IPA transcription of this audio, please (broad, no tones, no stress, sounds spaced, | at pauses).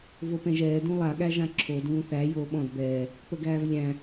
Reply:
v o p ɛ̃ ʒ ɛː d ũ lˠ a ɠ æ ʒ ã ǁʰ o d ũː θ æ j oː ɓ ɔ̃ d b ɛː | p ə ɡ æː v lʲ æ̃